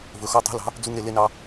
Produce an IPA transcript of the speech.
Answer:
v ɵ˨ x ɔ˧ tˤ ṳ˨˦ l ɑ̤˨˦ | d͡z u˦ ŋ ɾ e˧ l e˦ n ɑ˦

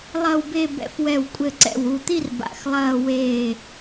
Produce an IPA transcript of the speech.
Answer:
lˠ ɐ˥˧ w b e˥˧ b ɛ̰˧˩ f w ɛ˧˩ w kʷʼ ɘ˧˩ ǀ ɛ̰˧˩ w u˧˩ t̪ i˥˧ r b a̰˧˩ x lˠ ɐː˥˧ w eː˧˩

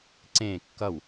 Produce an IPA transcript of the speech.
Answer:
ǀ ẽː kː ʌ w

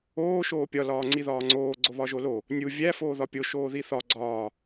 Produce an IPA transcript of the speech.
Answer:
oː ʃ oː pʲ ɒ l ɒː ŋ͡ǀ i ð ɒː ŋ͡ǀ oː ɡ͡ǀ o β ɒ ʒ o l o | nʲ u vʲ æ f oː ð ɒ pʲ o ʃ oː ð i θ ɒ ɡ͡ǀ ɒː

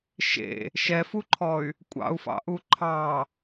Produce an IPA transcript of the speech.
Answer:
ʃ ḛ | ʃ ɛ f u ǃʰ ɔ y̯ | kʷʼ ɑ̰ u̯ f ɑ̰ ʔ u ǃʰ ɑ

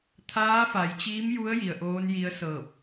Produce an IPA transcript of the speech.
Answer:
t̪ʰ aː˧˥ f a˩˧ j t͡ɕ iː˧˥ m j u˧˥ ə̯ j i˩ ə̯ ʔ oː˧˥ n j i˧˥ ə̯ s ɤː˧˩ p̚

